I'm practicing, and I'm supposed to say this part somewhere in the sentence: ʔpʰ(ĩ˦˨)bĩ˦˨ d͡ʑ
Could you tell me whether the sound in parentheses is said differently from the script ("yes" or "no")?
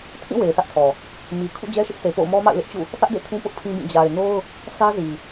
yes